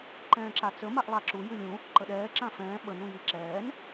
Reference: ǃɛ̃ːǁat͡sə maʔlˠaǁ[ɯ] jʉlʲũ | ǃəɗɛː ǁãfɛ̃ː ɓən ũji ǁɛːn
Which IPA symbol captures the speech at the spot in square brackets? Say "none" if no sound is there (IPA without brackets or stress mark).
u